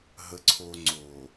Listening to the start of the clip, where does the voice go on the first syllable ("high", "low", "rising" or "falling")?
low